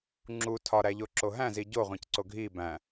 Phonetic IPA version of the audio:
ŋ͡ǁ u tʰ ɒ ɾ æ ʎ o ǁ o ɦ æ̃ z i ɟ o ʁʷ ẽ c ǀ o ɡʱ i b æ̃

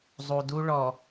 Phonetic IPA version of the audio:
zˤ u˨ d u˦ ɭ ɔ˨

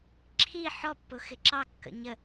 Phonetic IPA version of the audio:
ǁʰ i ħ ɔ pː ʊ x ɪ ǁ ɑ kː ə̰ ɲ ə

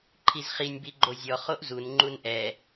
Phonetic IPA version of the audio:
ǃʰ i z χ i nʲ b i ɡ͡ǃ o zʲ ɔ χ o ʔ z u n ŋ͡ǃ u n ʔ ɛ

